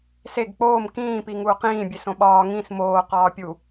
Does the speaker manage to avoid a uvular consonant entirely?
no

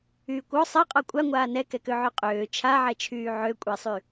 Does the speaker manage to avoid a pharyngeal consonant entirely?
no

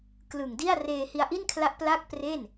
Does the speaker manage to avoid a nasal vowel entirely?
yes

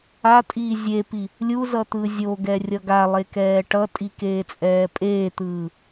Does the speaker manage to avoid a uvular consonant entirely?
yes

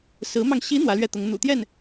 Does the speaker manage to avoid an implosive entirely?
yes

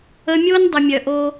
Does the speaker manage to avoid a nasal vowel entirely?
yes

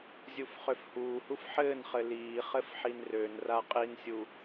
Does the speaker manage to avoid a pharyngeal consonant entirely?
no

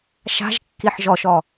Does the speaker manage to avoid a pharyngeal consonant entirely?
no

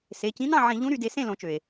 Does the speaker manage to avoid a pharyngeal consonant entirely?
no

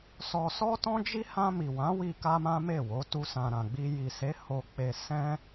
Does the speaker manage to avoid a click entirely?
yes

